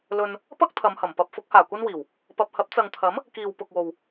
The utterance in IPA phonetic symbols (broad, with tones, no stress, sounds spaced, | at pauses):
l ɵ˧ n | p ɐ˥ k̚ t̪ʰ ɐ˨˧ m h ɐ˨˩ m p ɐ˧ p̚ f ʊ˨˥ k̚ h aː˨˩ kʷ ɐ˥ n w iː˨˩ w | p ɐ˨ p̚ h ɐ˨˥ p̚ t͡s ɐ˨ ŋ t̪ʰ ɐ˨˥ m | k iː˨ w p ʊ˨ k̚ w o˨ w